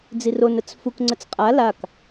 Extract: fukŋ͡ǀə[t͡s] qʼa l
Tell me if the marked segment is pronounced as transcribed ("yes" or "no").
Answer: yes